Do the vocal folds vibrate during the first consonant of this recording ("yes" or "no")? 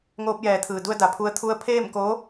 yes